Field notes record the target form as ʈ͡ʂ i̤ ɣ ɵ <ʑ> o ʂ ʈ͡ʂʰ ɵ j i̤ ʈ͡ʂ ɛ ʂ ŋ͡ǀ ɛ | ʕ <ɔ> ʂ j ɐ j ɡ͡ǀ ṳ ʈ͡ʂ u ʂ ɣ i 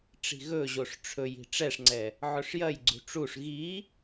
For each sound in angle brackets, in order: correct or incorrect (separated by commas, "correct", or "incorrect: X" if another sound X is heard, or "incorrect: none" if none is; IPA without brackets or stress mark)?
correct, incorrect: ɵ